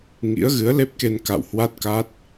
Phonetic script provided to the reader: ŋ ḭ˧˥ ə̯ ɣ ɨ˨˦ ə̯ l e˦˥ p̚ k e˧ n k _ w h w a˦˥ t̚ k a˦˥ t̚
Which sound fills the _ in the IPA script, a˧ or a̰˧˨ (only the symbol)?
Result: a̰˧˨